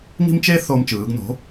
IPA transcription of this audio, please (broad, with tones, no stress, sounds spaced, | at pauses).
ŋ i̤˥ m t͡ʃ e˥ θ o˧ m t͡ʃ ɯː˩˧ ɡ n o̤˩˥